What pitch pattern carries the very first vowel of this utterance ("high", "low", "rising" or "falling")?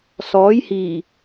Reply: rising